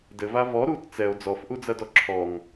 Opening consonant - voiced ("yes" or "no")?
yes